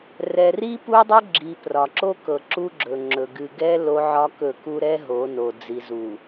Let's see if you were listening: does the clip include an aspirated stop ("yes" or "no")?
no